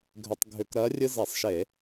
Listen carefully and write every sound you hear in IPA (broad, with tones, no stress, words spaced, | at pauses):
ɡʱʏ˧˩˧tˤɡʱʏ˧˩˧kɾɜ˧˥ rʲɨ˥ zɛ˧˩˧sˤʃe˧˩˧